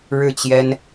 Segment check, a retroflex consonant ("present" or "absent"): present